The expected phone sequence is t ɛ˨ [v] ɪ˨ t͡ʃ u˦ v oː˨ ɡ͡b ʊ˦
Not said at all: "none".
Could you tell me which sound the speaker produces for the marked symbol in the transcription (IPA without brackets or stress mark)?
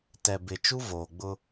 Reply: b